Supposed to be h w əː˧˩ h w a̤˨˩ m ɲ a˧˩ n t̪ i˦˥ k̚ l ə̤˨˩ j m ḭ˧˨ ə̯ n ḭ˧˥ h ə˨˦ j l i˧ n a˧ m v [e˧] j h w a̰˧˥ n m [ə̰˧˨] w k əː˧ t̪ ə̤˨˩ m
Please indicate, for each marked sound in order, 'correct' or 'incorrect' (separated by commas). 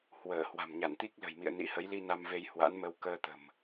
correct, incorrect